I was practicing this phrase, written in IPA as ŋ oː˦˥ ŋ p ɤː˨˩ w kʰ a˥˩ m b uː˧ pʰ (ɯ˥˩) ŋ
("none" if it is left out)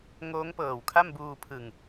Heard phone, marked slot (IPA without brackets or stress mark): ɯ˨˩